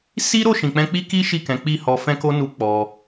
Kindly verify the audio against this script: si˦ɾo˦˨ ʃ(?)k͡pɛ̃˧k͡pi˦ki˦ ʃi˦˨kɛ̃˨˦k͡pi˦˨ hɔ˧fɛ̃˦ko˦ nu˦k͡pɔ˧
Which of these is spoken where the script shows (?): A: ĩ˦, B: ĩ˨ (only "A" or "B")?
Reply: B